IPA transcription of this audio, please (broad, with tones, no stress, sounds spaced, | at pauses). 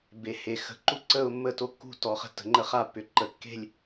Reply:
b e˩˧ h e˩˧ x ə̤˩˧ ǃ u˦˨ ǀ ə˦˨ ʊ̯ mː ə˦˨ t o˦˨ kː ṳ˦˨ t ɔ˩˧ χ ə̤˦˨ tː ə̤˩˧ ŋ͡ǃ ə˦˨ χ a˦˨ pː ʏ˩˧ ǃ ə˩˧ kː e̤˦˨ lʲ